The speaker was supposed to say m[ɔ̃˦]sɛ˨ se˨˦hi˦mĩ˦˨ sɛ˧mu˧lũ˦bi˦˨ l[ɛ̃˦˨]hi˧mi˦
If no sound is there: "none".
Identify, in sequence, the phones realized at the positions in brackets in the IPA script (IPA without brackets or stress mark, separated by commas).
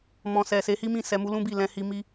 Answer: ɔ̃˨, ɛ̃˧